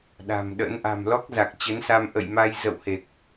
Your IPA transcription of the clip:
ɗ a̤˨˩ m ɗ ə̰˧˥ n ʔ a̤˨˩ m l ɔ˦˥ k̚ z a˨˩ k̚ t͡ɕ ə˨˦ n s a˧ m ʔ ə̰˧˨ j m a˧ j z ə̰˧˨ w h e˨˩ k̚

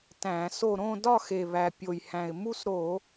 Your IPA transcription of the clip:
t æ̃˧˩˧ s o˥˨ ɾ õ˥˨ d ɒ˥˨ x e˨˩ β æ˨˩ pʲ o˨˩ j h æ̃˨˩ ɪ̯ m u˥˨ s ɾ o˧˩˧

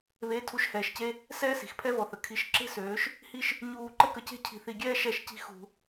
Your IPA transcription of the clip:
β e˨˦ tʰ u˨˦ ʃ h ɛː˨ ʃ c e˦ | s ɛː˦ s i̤˨ x pʰ ɛ˦ v ɔ˨ θ ə˨ kʰ i˨˦ ʃ ǁ e̤˦ s øː˨˦ ʃ | h i˦ ʃ | ɲ uː˧ ǃ ə˦ k ə˧ c e̤˦ cʰ i̤˧ θ i˧ ɡʲ ɛː˦ ʃ ɛ˦˨ ʃ c i̤˦ x ṳ˧

